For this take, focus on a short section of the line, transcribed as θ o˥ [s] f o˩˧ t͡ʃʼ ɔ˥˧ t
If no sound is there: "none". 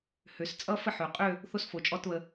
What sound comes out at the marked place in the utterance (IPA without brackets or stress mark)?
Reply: s